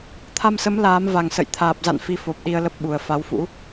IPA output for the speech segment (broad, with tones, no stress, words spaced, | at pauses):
t̪ʰa˧msə˨˦m laː˨˦mva˨˩ŋsə̰˧˨j t̪ʰaː˨˩p̚za̰˧˨n fi˧fo˨˩p̚ɗi˧ə̯ lə˦˥p̚ɓu˨˩ə̯ fa˨˦wfṵ˧˥